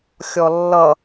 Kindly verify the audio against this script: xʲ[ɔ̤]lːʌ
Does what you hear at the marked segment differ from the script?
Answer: yes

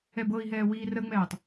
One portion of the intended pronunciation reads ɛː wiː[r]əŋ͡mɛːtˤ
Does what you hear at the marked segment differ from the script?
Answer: no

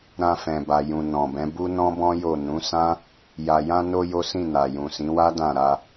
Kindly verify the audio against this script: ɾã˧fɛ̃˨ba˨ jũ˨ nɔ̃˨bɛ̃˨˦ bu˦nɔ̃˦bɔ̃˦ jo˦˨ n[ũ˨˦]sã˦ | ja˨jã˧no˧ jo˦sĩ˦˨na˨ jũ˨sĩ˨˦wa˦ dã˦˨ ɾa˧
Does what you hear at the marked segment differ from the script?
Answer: no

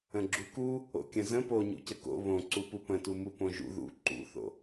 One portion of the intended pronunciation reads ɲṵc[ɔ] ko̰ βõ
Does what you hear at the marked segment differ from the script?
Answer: yes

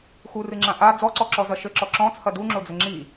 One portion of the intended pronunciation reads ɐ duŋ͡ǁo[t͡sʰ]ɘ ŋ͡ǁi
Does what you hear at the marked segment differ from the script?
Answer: yes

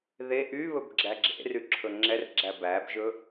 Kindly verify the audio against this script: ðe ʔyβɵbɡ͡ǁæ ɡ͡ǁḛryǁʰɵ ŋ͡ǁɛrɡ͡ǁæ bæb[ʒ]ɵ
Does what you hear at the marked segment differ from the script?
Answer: no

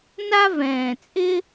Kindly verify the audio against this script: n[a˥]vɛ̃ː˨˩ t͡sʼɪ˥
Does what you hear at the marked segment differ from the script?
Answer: no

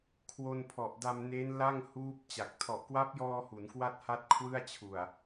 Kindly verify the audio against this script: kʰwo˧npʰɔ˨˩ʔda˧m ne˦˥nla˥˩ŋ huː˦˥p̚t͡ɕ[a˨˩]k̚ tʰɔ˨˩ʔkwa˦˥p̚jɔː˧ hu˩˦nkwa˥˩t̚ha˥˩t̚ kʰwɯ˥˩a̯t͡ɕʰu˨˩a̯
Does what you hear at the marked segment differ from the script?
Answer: no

